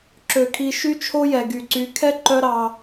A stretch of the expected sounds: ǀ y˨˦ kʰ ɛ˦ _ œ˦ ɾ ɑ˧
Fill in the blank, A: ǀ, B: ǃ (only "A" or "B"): B